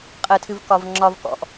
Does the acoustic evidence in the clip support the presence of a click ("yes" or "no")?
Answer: yes